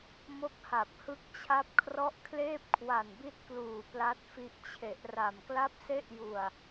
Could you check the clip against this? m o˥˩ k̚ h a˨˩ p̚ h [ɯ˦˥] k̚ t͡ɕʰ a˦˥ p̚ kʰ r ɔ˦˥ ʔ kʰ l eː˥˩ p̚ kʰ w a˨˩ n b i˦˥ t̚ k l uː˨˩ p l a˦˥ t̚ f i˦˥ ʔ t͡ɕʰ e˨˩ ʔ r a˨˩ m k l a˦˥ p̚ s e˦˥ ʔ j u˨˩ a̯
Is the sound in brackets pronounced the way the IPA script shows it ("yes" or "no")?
yes